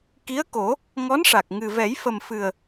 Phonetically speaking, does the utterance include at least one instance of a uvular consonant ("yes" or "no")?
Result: no